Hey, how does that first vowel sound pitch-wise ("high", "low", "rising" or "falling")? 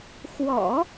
low